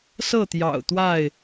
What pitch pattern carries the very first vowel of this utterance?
falling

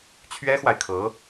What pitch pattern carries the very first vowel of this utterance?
high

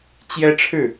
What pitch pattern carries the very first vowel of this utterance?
high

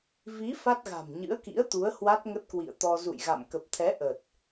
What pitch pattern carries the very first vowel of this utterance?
rising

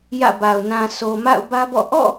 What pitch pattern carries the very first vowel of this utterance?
falling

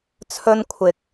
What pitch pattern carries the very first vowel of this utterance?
high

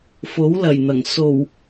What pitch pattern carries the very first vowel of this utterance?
rising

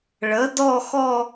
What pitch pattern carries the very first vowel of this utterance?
rising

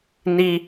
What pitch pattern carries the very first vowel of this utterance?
high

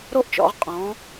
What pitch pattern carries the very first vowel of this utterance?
high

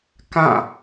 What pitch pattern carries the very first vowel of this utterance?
falling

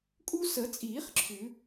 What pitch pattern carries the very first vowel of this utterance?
high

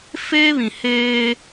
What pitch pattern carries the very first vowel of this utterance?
high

